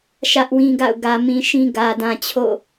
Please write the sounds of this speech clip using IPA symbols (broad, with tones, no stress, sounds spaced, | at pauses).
ʃ ä˦ ʔ w ĩ˦ ɡ a̰˦˨ ʊ̯ ɡ ä˨ m ĩ˨ ʃ ĩ˦ ɡ ä˨ d ã˨ t͡ɕʰ o̰˦˨